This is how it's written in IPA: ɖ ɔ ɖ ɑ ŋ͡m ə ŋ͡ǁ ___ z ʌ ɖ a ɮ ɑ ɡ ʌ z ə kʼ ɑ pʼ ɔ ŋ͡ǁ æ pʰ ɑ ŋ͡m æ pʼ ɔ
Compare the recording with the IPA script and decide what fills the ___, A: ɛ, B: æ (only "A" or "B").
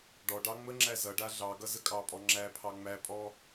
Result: B